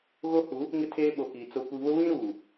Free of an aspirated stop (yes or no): no